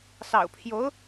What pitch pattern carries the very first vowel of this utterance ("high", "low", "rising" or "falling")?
low